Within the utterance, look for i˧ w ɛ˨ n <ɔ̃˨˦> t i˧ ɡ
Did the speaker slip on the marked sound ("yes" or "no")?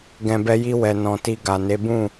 yes